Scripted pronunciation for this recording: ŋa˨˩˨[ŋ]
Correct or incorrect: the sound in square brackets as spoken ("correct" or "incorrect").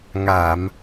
incorrect